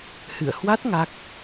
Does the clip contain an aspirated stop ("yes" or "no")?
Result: no